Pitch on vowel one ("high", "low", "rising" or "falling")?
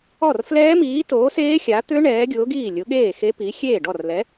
falling